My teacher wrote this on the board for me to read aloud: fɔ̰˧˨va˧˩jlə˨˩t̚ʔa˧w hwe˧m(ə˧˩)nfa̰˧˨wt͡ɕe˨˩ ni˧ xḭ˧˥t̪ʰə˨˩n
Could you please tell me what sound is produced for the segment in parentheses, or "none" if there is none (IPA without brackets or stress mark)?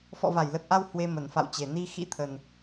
ə˧˩